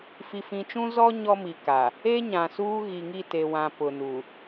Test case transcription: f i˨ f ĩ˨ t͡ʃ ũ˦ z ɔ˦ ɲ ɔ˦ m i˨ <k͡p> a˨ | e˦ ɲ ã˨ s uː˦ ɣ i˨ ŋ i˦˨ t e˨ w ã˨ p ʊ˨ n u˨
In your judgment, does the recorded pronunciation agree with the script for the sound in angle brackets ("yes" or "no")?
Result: no